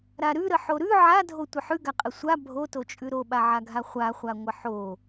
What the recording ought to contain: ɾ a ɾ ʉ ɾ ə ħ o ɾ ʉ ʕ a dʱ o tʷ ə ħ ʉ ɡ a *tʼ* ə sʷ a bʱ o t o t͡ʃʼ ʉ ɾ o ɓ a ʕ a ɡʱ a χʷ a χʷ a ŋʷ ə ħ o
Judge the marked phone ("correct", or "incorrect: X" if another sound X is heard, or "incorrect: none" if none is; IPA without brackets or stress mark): incorrect: qʼ